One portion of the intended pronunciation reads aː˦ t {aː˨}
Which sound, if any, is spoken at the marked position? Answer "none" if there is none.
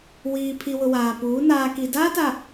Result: a˨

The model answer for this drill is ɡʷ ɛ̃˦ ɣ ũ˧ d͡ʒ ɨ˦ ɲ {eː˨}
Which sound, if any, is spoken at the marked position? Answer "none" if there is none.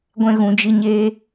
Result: eː˦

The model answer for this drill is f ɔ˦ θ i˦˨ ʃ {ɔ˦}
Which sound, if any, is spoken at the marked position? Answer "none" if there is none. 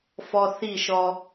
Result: ɔ˦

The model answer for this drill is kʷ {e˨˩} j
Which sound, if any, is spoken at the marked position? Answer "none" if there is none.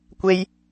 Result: e˥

